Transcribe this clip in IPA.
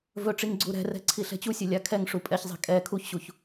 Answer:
v ɵ ʈ͡ʂ i ŋ ɡ͡ǀ u ɾ ɛ̤ r ɛ̤ ǀʰ i ɬ ɛ̤ t͡ɕ u sʲ ɵ lʲ a kʰ ɛ ŋ ʂ u pʼ ɛ ç zˤ ɛ̤ kʼ ɛ kʰ u ç ɕ u ç

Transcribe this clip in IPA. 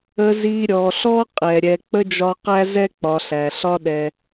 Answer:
ə˨ z i˨ ɾʲ ɔ˩ ɬ ɔ˦ qʼ ɛ˩ ɾʲ ɛ˨ k͡p ə˥ d͡ʒ ɒ˦ q æ˥ z ɛ˥ k͡p ɒ˨ ɬ æ˩ ɬ ɒ˥ ɗ ɛ˨

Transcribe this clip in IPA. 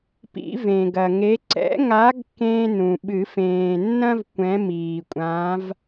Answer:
p ḭ˨˩˦ v ẽ˩ ɡ ɐ˩ ŋ e˨˦ ǀ ɛ̰˨˦ ŋ a˨˦ ɡ k ẽ˥ n ũ˩ ɓ ɨ˨˩˦ f ẽː˩ nː ɐ̃˥ v kʷ ɛ̃˨˦ m iː˩ kʷʼ ã˨˦ v

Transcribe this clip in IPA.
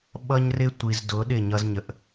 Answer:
ɓ ʌ˦ ɲ r ɪ˦ tʷ i˨ z d ʊ˨˦ ɗ ɪ˦˨ ɲ ʌ˦ z ɲ ə˨ ʔ

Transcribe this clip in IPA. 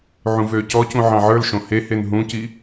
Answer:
ʕ ũ v øː c ɔ c ũ ʕ ɑ̃ ʕ ə˞ l ʃ õ h e h e n ɦ ũ c i

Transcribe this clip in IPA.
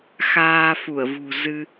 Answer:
x aː˧ f u˧˩ ə̯ v ṳ˨˩ z ɨ˧

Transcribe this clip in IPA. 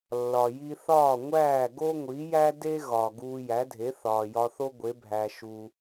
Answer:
lː ɒ˩ j i˧ θ ɒː˥˩ ŋʷ æː˥˩ ɡ o˥ ŋʷ i˩˥ j æ˥ d e˥ ɣ ɒ˩ ɡ uː˧ j æ˩˥ dʱ e˩˥ θ ɒː˩ j ɒ˧ θ o˥ ɡʷ e˩˥ bʱ æ˩ ʃ u˩

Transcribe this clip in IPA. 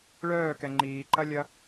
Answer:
ɭ œː k ɛ ŋ͡ǃ iː ǃ ɐ lʲ ɐ

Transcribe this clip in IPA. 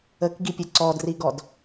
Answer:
ə k ɡ i pʲ ə ǀ ɔ d r i ɡ ɔ d

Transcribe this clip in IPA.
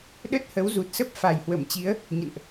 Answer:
ɗ ə˦˥ t̚ h ə˨˦ w z u˨˩ t̚ s ə˦˥ p̚ f a˨˩ j h w ə˧˩ m t͡ɕ i˨˦ ə̯ | ɲ ə̰˧˨ n ʔ

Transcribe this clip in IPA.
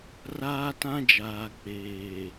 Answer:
r aː˦ t ã˦ d͡ʒ aː˨ k͡p eː˨

